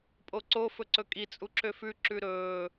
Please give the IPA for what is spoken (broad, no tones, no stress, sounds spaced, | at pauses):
pʼ o ǀ o f ɵ ǀ ɵ kʼ i t͡sʼ u ǁ ø f ʉ ǁ ʉ ɾ ɵː